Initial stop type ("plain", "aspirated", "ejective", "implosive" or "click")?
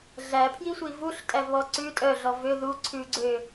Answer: aspirated